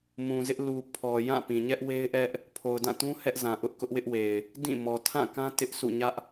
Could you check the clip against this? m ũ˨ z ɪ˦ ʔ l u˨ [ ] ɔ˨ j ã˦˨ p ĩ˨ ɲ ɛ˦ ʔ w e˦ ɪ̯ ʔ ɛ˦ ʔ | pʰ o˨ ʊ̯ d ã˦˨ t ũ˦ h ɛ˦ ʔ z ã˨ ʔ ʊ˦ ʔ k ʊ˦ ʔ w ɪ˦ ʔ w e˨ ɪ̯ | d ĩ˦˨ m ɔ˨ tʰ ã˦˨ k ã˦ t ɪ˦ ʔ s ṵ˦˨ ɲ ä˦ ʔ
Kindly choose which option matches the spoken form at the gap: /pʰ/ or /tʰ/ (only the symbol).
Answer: pʰ